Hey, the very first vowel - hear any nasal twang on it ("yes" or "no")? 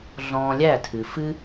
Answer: yes